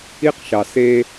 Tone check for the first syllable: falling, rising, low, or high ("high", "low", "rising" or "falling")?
high